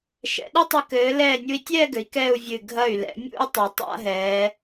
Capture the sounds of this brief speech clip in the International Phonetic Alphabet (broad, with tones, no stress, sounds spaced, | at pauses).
ʃ ɛ̰˩˧ ɗ ɘ˥ tˤ ɘ˧ k ɘː˩˧ l ɛː˧˩ nʲ u˧ i̯ tʲ ɛː˥˧ ɡ ɘ˩˧ i̯ k ɛ˥˧ u̯ vʲ ɨ˧˩ ɡʱ ɐ˧˩ y̯ l ɛ̰˩˧ mʲ ṵ˥˧ y̯ tˤ ɐ˩˧ tˤ a̰˥˧ ɦ ɛː˩˧